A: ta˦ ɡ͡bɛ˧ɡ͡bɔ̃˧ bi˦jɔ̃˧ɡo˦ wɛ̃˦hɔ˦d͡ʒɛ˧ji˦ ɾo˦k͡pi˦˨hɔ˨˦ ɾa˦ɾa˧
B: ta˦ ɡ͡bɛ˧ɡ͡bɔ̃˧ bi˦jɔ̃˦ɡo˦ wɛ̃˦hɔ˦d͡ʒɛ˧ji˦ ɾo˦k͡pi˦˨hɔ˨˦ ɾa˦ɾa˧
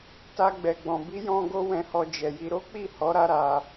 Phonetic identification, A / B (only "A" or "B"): B